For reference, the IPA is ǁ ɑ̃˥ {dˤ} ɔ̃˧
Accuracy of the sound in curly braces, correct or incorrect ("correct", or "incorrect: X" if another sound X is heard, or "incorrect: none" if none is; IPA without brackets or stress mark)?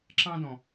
incorrect: d